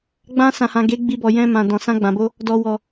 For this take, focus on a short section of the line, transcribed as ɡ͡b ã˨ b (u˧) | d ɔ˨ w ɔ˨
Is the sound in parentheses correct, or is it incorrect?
incorrect